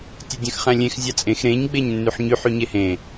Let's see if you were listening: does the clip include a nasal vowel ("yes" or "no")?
yes